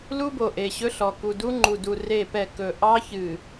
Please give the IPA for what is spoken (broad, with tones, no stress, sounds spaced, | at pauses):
l u˦ b o˨ ʔ e˨ ɕ ɵ˦ ɬ ɔ˨ k u˨ d u˦ ŋ͡ǃ u˨ d u˨ r e˦˨ p ɛ˦˨ k ɵ˨ ʔ ɑ˦ ç ɨ˨